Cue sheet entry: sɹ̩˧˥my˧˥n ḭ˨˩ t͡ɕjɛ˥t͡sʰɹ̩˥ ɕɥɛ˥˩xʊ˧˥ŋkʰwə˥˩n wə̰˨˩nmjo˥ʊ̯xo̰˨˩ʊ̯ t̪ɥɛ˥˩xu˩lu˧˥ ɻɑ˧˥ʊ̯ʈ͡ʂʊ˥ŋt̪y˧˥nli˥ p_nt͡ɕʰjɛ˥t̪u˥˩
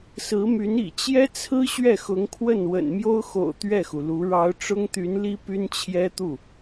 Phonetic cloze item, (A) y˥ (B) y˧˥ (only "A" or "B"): A